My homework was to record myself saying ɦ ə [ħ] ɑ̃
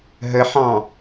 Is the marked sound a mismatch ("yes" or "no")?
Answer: no